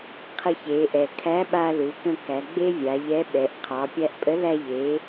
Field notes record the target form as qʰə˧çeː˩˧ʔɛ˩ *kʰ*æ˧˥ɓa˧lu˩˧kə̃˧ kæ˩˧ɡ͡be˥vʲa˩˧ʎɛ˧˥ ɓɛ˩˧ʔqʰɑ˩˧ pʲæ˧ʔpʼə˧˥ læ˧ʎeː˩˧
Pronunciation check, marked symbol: correct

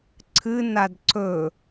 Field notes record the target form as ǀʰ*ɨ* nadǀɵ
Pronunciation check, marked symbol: correct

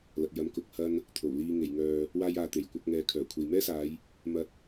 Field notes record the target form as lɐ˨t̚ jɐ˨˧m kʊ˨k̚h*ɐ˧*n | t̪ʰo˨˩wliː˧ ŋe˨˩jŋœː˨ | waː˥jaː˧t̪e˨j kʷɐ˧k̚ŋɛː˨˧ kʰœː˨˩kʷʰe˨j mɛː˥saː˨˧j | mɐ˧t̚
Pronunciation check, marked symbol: correct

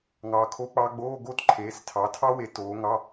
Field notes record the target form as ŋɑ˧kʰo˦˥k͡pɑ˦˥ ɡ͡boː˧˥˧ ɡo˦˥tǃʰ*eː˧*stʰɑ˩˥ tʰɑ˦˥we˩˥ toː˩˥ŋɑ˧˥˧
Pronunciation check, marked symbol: incorrect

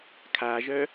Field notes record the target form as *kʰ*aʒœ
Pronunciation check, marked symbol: correct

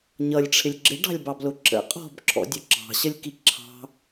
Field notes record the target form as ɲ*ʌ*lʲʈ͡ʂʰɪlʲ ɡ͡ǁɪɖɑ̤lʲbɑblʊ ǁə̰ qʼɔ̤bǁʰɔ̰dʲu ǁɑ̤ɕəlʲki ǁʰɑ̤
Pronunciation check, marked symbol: correct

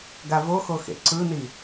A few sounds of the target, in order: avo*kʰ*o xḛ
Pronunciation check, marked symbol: incorrect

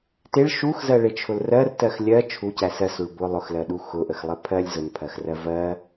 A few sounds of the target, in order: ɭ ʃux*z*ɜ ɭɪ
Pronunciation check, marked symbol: correct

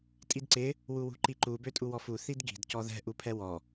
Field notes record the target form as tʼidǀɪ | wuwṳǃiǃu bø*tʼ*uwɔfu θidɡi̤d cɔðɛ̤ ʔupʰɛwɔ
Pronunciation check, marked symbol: correct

